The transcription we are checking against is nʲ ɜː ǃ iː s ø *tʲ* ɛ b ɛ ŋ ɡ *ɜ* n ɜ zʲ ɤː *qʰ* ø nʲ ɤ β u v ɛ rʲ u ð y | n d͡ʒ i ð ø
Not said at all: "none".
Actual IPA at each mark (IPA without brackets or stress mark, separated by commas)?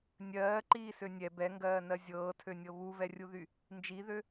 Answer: nʲ, ɜː, tʰ